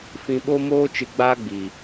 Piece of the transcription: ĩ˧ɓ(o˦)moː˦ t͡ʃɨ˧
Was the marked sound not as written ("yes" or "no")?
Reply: no